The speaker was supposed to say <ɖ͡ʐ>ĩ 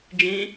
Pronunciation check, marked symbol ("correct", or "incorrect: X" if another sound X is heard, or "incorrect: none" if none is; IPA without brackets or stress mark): incorrect: d͡ʒ